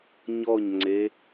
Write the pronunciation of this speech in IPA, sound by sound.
ɲ ɔ ɲ ŋ͡ǀ e

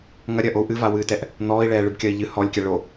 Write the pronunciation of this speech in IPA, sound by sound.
ŋ ɐ ɾʲ ɐ ʔ o u̯ ʔ ɨ v a w ɨː t ɛ ʔ | n̪ ɔː i̯ ɭ ɛː ɭ ɨ b kʲ ɐ i̯ ʎ ɨ h ɔ lʲ kʲ a ɭ o

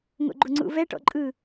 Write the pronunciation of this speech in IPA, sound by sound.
ŋ o̰ ɡ͡ǃ u ŋ͡ǀ ṵ v ɛ ʈ ɔ̰ ǃʼ ɯ

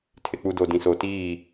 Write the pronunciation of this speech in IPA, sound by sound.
tʰ ɪ˨ k͡p u˨ d o˨ d ĩ˨ s o˨ t iː˦˨

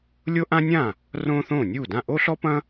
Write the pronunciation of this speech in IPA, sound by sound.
lʲ o˥ ʔ ã˥ nʲ ã˥˩ | r õː˥ θ õː˥˩ nʲ uː˥˩ d ã˥˩ ʔ o˥ ɬ ɔ˥ p ɐ̃˥

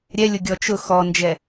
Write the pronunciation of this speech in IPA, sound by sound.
ɾʲ ɛ lʲ ʊ ɡʲ ɔ t͡ʃ ʊ x ɔ n d͡ʒ ɛ

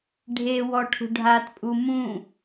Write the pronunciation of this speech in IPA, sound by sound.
ɖʱ e w ɔ ʈʰ ṳ ɖʱ a t pʼ u m ũ

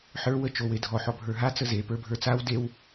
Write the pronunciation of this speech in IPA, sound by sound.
ħ ə˞ w ə t͡ʃ o w e dʱ ɔ ħ ɔ bʱ ə˞ ɦ a t͡s ə z e p ə˞ bʱ ə˞ t͡s a w d e w

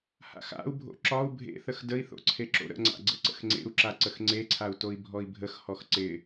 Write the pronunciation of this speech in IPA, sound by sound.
h a̰ x a̰ u̯ bʱ o̰ ǁ ɒ u̯ bʱ ḛ θ ə x d ə i̯ θ o̰ ǀʰ e ǁ o̰ ɾ ə̰ ŋ͡ǀ a̰ ɡ͡ǀ ə̰ ǀ ə̰ x ŋ͡ǀ ḛ u̯ ǁ a ǀ ə x ŋ͡ǀ e ǀʰ a u̯ t o i̯ bʱ ɔ i̯ bʱ ə x h ɔ x ǀ ɪ

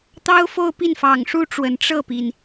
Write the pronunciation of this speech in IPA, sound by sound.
t̪ ɑ˥ ʊ̯ f o˥˧ ʊ̯ p i˥˩ n f ɑ˨˩ ŋ ʂ u˥ ʈ͡ʂ w ə˨˩ n ʈ͡ʂ ɤ˥˩ p i˩ n

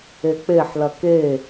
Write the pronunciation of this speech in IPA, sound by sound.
e k͡p e ħ l ɐ k e

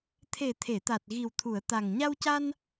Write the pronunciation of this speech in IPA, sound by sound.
t̪ʰ e˨˩ t̪ʰ e˨˩˨ t̪ a˨˩ t̚ ɣ i˨˩ w t̪ʰ u˨˩˨ ə̯ t̪ a˨˩ ŋ ɲ a˧ w c a˧ n

